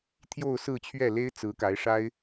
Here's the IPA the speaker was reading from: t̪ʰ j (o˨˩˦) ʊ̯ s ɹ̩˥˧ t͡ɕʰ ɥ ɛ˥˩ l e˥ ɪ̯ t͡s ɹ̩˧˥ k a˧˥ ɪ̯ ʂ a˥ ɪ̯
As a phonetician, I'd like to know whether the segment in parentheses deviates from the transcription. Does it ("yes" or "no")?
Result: yes